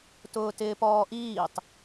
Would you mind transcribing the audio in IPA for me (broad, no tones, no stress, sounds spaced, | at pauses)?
t ʊː t ɪː p ɔː ʔ iː tˤ